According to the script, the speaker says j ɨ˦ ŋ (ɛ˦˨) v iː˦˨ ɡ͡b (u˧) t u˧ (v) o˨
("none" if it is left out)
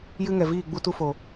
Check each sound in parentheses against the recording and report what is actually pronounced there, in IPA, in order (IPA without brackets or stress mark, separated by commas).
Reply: ɛ˨, u˧, f